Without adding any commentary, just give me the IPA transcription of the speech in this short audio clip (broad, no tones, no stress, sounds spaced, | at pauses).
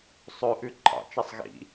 sˤ ʉ ʔ ʉ ǃʰ ɑ̰ t͡ʃ i sˤ ɣ ḭ